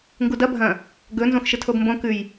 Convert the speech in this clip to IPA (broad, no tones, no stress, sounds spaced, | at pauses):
ŋ ɡ u d ɐ bʱ ɐ̃ | ɡ ɵ n z õ x ʃ ɨ tʰ o b m b õ k ʉ j